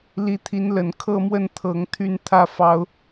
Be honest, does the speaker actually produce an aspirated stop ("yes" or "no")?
yes